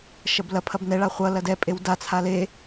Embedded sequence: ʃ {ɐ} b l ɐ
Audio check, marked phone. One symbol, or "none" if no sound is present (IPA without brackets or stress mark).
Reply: ɐ